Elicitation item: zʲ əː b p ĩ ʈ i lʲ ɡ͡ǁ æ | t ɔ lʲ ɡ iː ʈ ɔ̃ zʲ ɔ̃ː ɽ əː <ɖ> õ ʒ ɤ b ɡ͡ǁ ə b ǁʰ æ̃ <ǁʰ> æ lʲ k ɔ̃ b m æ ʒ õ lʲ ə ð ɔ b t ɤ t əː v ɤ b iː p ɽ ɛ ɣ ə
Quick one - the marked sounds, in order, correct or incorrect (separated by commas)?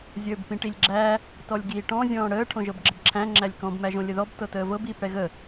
incorrect, incorrect